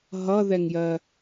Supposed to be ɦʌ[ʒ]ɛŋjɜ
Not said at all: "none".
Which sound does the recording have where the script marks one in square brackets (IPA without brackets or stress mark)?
ð